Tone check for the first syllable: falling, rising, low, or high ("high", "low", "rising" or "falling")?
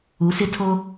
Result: rising